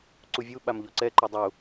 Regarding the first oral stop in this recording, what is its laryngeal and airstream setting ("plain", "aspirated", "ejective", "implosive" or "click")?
click